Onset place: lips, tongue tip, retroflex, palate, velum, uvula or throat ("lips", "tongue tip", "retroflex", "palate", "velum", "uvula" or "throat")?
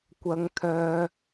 velum